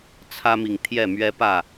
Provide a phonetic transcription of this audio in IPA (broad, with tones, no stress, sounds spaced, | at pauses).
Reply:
t͡sʰ ä˦ m i˨ ŋ t̪ʰ j ɛ˥˨ m ɥ ɛ˦ p ä˥˨